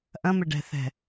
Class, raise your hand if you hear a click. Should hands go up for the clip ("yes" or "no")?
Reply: no